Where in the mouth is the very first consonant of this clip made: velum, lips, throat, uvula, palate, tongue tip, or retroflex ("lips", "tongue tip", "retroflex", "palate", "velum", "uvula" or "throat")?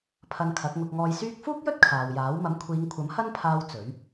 lips